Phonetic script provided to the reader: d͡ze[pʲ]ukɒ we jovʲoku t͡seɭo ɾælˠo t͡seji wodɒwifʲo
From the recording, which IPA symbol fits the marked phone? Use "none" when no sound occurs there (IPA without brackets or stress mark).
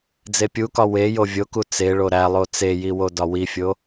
pʲ